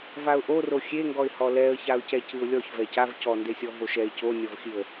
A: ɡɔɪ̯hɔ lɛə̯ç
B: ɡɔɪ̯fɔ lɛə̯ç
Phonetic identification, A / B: A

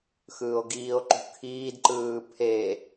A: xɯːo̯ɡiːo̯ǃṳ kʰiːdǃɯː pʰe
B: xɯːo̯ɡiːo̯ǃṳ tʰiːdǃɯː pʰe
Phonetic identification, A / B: A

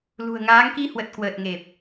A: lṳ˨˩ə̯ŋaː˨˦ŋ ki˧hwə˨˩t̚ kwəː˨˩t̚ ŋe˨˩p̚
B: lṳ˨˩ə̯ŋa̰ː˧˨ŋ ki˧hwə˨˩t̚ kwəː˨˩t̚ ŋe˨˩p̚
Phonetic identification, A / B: A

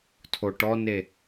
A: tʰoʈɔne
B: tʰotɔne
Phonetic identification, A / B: A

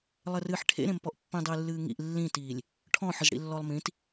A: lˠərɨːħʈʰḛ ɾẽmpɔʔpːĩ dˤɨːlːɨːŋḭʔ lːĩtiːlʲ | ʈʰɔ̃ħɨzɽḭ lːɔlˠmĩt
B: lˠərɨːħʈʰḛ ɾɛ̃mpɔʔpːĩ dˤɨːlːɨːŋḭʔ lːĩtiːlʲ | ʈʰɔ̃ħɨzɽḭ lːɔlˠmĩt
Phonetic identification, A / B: A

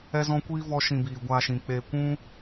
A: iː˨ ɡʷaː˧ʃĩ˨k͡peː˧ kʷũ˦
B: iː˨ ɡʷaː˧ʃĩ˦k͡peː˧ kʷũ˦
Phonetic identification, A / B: A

